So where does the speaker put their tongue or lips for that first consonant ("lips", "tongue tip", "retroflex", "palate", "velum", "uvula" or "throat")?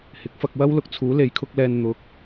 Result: throat